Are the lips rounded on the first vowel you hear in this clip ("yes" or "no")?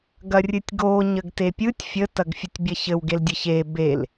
no